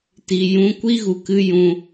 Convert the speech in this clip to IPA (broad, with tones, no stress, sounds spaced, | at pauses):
t i˨ j ũ˧ kʷ i˦ ɣ u˨ k ɨ˧ j ũ˧